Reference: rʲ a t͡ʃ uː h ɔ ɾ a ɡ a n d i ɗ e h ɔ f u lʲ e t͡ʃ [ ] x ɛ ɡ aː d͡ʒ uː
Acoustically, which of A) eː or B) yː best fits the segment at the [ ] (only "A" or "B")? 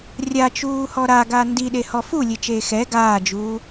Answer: A